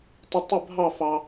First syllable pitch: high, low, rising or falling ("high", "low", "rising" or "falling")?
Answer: high